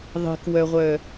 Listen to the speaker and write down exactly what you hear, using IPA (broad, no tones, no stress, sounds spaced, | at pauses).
ðˤ i̤ k w œ ʁʷ œ